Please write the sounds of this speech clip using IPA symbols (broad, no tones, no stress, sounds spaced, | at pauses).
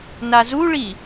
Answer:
n a z u ɭ i